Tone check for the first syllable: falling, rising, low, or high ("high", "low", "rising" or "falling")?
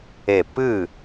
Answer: falling